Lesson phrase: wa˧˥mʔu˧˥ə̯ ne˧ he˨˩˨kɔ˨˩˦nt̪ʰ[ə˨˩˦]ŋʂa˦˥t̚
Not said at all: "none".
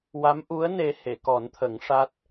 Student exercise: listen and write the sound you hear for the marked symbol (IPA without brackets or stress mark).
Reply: ə˨˩˦